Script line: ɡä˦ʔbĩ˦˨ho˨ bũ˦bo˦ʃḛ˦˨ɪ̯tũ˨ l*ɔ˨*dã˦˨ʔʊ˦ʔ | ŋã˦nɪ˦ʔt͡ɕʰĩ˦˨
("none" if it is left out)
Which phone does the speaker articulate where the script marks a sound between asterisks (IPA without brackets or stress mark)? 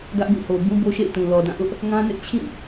ɔ˨